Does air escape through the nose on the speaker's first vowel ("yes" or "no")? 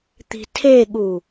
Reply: no